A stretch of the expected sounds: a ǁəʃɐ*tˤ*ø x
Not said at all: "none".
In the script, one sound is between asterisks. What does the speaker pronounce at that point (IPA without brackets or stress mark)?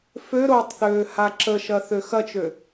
θ